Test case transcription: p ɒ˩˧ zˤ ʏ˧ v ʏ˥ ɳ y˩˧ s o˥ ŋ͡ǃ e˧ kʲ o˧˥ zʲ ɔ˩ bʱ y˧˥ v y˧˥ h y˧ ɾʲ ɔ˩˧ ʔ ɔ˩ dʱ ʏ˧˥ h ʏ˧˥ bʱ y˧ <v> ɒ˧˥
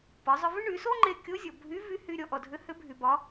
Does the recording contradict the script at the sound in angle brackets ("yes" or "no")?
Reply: yes